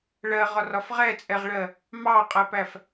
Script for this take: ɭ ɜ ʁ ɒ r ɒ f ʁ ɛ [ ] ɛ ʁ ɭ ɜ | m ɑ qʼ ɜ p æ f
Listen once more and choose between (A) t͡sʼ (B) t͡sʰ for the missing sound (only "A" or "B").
A